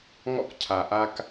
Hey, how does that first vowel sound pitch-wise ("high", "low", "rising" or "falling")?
high